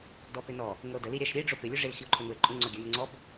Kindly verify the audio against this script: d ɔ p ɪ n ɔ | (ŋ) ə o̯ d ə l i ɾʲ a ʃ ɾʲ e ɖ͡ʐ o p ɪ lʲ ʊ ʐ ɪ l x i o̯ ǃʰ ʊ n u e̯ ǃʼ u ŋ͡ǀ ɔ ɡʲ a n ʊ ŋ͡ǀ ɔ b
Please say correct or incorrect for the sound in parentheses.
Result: correct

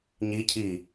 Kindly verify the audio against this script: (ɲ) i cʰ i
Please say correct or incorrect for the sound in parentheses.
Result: correct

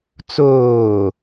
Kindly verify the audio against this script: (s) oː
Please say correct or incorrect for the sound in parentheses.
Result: incorrect: t͡s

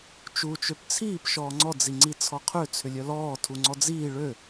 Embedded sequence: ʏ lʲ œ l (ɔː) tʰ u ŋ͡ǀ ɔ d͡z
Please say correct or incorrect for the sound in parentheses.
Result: correct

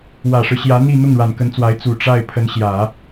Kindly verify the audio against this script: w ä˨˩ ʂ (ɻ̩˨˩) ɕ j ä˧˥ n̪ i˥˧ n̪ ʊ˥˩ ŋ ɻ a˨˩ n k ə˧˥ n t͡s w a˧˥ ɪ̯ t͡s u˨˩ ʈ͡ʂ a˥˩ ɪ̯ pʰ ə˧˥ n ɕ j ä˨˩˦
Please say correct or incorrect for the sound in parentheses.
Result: incorrect: ɻ̩˦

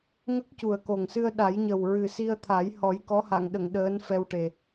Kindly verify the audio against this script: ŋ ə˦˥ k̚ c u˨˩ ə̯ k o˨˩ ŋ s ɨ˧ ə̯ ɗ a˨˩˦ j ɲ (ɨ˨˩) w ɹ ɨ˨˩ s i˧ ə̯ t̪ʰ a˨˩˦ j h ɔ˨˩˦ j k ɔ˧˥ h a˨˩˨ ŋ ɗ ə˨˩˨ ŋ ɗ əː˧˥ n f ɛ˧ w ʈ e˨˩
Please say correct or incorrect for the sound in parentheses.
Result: incorrect: ə˨˩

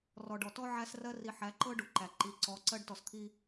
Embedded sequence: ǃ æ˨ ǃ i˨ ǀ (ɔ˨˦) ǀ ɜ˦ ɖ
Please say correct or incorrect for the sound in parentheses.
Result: correct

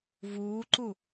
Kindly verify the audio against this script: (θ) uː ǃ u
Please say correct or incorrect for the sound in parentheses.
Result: incorrect: v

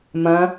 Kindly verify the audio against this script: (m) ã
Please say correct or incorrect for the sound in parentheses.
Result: correct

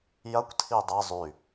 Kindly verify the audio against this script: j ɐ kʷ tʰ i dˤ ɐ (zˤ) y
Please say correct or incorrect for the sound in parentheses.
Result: correct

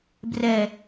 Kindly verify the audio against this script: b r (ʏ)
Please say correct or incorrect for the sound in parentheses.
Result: incorrect: ɛ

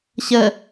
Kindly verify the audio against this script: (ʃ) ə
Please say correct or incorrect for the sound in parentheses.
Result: incorrect: ɕ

